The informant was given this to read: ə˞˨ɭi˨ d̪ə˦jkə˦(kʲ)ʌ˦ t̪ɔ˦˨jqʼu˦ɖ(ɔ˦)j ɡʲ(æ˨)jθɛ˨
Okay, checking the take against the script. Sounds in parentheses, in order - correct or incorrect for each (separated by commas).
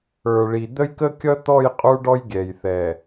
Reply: correct, correct, incorrect